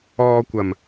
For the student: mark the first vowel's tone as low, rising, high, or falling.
low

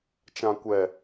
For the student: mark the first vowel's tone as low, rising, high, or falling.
low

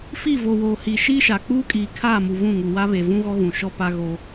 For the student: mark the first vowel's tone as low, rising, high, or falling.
falling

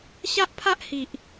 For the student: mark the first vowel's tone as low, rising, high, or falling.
high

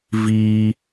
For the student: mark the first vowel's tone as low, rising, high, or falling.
high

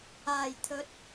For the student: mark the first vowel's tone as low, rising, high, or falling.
low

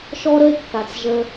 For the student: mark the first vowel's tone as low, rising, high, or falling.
high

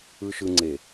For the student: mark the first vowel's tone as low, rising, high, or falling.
low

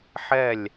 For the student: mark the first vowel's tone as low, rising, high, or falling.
falling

